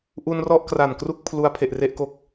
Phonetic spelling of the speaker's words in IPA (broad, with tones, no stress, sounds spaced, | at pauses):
ʔ u˧ n r ɔ˥˩ ʔ k r a˨˩ n k r u˥˩ k̚ pʰ l u˦˥ a̯ pʰ e˨˩ ʔ r e˥˩ ʔ k o˦˥ k̚